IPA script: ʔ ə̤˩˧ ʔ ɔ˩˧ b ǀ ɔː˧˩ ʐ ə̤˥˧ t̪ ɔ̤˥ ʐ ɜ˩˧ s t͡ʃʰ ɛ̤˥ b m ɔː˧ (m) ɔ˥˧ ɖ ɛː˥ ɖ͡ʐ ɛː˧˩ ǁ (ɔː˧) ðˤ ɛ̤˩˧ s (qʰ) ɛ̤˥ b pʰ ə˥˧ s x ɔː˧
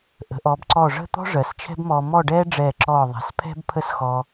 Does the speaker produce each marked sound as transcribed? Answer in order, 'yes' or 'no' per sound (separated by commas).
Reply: yes, no, no